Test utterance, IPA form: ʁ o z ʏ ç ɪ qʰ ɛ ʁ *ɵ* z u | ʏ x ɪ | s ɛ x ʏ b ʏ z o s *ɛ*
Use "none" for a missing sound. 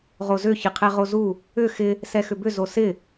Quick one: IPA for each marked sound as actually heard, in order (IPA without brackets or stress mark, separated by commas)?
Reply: o, ɪ